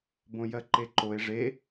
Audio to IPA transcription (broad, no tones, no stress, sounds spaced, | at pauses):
b õ j ɜ ǃ e ǃ o e̯ ʐ e